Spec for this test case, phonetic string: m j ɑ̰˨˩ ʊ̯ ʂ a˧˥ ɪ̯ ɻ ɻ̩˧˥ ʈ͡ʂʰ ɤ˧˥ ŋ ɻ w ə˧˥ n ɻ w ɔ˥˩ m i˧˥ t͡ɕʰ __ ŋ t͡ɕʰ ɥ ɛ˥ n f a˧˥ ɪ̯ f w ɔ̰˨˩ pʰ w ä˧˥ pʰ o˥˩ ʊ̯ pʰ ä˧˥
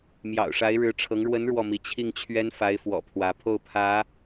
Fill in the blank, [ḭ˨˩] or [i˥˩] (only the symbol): i˥˩